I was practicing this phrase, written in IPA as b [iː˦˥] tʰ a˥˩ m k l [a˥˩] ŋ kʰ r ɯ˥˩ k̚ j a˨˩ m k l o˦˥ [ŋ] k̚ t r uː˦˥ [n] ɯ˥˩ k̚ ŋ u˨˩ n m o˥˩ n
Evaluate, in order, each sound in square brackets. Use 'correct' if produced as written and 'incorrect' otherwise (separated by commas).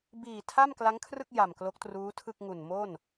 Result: incorrect, incorrect, incorrect, incorrect